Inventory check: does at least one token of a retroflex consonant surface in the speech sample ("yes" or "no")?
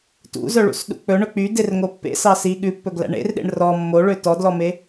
yes